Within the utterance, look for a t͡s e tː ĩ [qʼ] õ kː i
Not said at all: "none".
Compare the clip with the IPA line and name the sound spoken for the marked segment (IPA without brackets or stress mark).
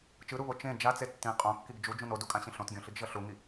qʼ